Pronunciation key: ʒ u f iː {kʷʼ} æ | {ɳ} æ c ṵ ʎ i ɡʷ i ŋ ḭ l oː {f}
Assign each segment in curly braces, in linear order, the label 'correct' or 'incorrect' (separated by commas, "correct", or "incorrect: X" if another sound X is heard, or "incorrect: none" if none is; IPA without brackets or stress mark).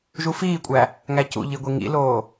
correct, incorrect: ŋ, incorrect: none